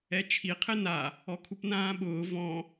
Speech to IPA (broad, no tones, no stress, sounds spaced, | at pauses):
ɛ t͡ʃʰ i qʰ ɪ n a | ɔ kʰ u p n ãː ɓ ʊː v ɔ̃